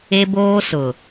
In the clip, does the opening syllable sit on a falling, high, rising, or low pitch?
high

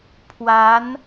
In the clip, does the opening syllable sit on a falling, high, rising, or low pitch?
rising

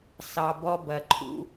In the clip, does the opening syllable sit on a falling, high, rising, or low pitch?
low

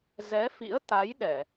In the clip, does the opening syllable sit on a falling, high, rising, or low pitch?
rising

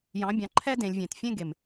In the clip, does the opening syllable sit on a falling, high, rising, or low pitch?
rising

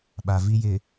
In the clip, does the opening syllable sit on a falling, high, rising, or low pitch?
low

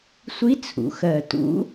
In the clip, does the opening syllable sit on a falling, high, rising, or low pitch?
rising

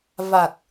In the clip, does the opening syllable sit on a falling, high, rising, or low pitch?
low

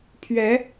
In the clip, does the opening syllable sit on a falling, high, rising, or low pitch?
rising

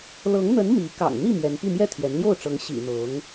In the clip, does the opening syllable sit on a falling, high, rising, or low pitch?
rising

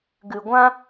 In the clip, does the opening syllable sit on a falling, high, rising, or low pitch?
low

